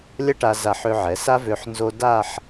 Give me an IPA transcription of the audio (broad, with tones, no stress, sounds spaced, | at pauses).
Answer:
lʲ ɐ˥ ʈ a˧ z a˧˩ ħ ø˧ ʕ ɛ˩˧ s a˥ v ø˧ ħ n z o˧ d a˥˧ ħ